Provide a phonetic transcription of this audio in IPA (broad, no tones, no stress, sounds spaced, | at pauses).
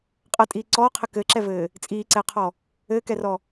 qʼ ɐ tʼ iː ǀ ɔː qʰ ɘ k ɘ ǁ ɛ v ɘː | t͡sʼ iː ǀ ɛ qʰ ɔ | ɘː k ɛ r ɔ